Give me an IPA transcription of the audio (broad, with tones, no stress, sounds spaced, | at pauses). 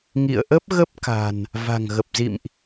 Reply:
ŋ ḭ˧˨ ə̯ ʔ ə˦˥ p̚ ɣ ə˦˥ p̚ k a̤˨˩ n | v a̤˨˩ ŋ ɣ ə˨˩ p̚ z ḭ˧˨ m ʔ